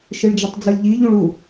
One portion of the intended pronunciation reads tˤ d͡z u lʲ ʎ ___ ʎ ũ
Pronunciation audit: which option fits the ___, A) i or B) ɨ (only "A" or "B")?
A